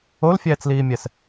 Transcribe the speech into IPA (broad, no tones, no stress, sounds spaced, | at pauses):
o l fʲ ɛː t͡s l iː mʲ ɛ s